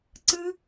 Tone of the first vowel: high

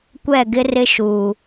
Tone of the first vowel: falling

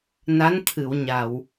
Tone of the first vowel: rising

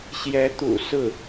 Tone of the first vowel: rising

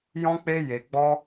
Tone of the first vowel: high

